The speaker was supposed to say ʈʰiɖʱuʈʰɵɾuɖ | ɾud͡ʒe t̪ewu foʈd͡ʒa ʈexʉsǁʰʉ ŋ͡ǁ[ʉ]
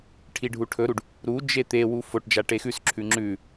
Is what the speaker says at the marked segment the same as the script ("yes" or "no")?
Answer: yes